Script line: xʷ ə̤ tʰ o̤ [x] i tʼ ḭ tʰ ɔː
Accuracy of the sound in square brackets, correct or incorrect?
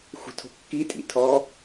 incorrect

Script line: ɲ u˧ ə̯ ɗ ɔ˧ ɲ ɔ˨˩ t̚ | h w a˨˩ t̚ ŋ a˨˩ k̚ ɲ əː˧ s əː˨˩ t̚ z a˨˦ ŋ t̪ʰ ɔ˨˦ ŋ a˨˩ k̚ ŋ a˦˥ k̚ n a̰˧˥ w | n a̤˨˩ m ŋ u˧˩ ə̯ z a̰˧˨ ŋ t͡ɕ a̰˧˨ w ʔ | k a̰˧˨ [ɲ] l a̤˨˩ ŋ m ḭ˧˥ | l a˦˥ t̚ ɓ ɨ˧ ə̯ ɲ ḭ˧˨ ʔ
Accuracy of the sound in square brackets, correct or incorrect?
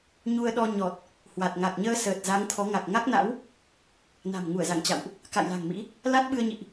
incorrect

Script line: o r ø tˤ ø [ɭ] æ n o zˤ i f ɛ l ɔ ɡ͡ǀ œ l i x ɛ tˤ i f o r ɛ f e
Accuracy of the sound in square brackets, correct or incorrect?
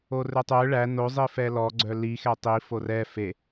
correct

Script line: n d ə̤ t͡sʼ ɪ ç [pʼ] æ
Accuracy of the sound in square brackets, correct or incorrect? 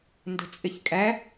incorrect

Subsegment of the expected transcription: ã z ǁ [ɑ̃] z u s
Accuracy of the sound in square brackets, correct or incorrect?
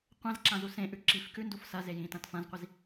incorrect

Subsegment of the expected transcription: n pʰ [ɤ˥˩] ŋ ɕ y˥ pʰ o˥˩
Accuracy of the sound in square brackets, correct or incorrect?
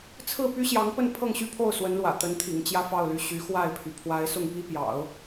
correct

